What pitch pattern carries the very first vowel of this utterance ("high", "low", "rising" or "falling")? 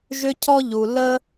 high